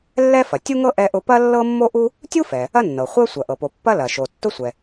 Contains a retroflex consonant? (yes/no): no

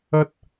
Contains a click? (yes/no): no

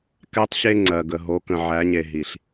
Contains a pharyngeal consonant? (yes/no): yes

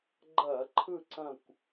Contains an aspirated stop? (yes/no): yes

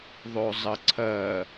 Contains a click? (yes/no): yes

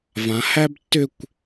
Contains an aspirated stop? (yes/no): no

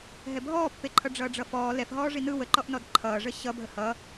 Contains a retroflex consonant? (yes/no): yes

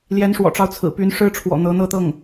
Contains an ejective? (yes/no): no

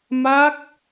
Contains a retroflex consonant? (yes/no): no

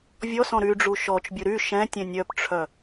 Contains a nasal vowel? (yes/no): yes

